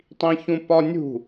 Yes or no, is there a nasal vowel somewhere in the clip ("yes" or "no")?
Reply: yes